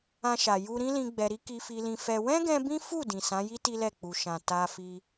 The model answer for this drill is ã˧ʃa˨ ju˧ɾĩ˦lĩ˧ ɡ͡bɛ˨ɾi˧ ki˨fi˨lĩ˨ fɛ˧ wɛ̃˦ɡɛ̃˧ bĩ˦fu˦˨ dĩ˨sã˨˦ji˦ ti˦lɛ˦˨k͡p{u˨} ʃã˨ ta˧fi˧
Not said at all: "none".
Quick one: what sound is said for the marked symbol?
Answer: u˨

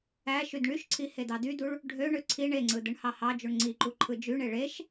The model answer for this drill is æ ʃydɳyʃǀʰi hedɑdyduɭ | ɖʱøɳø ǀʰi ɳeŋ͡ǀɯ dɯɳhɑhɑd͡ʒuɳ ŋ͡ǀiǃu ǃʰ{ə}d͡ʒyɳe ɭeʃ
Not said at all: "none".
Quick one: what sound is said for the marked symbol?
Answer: ɯ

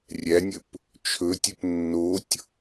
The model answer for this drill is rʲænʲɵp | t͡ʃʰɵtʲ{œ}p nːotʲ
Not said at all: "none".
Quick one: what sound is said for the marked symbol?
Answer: ø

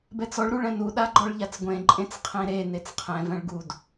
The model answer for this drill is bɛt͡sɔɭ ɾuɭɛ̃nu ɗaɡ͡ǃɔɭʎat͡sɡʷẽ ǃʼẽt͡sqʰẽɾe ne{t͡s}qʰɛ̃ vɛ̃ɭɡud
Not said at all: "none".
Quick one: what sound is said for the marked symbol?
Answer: t͡s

